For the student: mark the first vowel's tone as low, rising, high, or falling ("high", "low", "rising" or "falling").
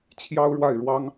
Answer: high